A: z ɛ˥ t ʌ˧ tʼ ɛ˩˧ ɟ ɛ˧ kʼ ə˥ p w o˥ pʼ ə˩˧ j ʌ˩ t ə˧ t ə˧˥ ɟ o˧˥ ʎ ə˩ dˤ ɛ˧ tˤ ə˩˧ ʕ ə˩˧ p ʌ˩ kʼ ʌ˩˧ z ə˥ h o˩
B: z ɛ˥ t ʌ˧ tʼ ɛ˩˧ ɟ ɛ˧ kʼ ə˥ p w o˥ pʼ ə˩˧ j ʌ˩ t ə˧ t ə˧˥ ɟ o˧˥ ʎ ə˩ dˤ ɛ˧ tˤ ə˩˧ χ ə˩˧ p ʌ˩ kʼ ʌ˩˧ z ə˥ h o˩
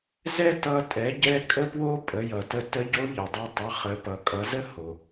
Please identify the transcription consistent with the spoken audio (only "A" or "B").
B